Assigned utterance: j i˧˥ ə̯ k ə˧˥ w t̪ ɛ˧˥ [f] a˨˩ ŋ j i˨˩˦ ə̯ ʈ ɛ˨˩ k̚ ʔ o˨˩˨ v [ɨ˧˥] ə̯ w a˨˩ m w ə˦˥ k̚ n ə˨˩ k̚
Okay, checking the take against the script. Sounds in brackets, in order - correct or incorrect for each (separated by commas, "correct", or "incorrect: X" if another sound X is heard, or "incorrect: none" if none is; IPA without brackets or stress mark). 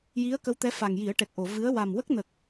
correct, correct